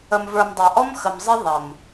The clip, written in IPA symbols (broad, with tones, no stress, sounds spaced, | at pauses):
ə˨ m v ə˞˨ m dˤ a˨ ʔ ɔ˦ m x ə˨ m zˤ ɪ˦ ðˤ ə˨ m